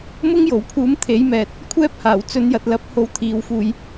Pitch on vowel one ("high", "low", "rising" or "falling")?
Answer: high